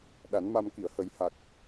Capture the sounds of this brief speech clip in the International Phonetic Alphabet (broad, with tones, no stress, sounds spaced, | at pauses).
ɗ a˨˩˦ n m a˧ m k i˨˩˨ ə̯ h ə˨˩˦ j h a˨˩ k̚